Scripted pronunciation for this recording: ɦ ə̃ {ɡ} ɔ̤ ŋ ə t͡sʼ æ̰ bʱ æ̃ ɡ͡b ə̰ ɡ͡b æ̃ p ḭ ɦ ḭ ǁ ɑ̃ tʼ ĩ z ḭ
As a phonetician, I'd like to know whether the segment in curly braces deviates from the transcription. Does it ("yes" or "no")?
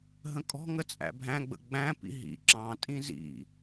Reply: yes